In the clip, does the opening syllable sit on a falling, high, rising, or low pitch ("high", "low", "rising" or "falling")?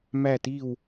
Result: falling